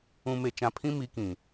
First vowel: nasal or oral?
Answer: nasal